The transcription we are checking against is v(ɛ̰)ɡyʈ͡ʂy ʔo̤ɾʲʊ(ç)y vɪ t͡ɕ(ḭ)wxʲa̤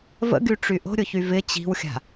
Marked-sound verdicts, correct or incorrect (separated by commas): incorrect, correct, incorrect